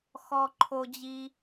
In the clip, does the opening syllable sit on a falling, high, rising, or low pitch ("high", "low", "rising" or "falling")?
high